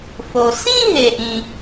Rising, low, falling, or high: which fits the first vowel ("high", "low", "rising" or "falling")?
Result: low